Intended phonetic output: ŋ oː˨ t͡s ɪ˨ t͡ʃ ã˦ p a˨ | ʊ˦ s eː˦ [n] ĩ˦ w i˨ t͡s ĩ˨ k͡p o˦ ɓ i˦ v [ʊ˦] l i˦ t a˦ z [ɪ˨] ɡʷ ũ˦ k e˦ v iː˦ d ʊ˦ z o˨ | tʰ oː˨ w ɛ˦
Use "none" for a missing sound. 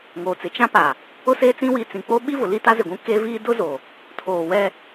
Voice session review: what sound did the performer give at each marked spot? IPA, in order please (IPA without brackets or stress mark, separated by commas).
t͡s, ʊ˨, ɪ˨